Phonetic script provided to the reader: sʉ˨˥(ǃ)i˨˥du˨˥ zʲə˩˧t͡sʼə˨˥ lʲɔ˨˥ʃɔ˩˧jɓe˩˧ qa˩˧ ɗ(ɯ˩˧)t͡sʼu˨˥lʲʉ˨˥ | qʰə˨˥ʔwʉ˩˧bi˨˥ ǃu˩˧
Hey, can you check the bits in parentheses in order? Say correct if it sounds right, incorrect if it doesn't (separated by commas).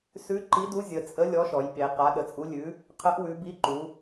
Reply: correct, incorrect